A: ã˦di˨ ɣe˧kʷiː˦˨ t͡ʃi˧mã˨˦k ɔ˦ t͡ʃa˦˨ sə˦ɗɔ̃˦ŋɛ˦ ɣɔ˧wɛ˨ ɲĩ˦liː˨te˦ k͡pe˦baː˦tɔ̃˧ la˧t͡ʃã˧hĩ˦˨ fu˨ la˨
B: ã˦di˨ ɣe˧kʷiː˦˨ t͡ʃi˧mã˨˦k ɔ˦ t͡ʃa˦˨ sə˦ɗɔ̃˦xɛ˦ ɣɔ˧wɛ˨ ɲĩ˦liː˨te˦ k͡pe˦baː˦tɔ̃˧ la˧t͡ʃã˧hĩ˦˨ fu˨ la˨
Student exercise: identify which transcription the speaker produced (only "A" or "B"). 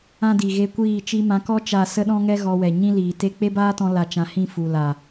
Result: A